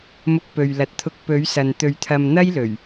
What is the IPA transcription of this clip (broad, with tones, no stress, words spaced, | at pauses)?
mʊ˧k̚pɵ˨ɥlɐ˨t̚t̪ʰʊ˧k̚ pɵ˨˧ɥsɐ˨n t̪ɵ˧ɥt̪ʰɐ˧mn̪ɐ˥j lɵ˨˩ɥ